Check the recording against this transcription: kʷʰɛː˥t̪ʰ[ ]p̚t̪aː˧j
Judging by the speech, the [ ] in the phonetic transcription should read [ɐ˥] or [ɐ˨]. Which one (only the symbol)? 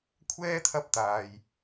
ɐ˥